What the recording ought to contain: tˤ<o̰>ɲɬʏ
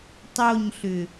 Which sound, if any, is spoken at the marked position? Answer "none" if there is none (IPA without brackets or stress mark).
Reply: o